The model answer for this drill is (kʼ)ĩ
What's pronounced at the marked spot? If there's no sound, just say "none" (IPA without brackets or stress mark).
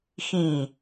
x